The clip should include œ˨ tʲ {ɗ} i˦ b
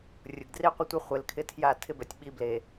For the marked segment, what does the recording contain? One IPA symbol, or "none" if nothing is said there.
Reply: ɓ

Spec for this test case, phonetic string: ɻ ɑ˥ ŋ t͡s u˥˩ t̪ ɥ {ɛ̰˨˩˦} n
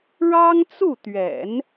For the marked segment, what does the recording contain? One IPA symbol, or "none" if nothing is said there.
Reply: ɛ̰˨˩˦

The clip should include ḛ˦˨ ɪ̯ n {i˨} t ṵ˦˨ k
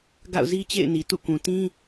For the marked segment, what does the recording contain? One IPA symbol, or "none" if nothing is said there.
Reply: i˨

